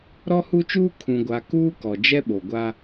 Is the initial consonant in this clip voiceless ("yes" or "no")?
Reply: no